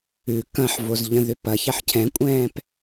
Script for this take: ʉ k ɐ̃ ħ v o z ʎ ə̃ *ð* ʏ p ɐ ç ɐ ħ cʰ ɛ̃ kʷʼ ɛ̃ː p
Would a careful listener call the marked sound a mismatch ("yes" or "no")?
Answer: no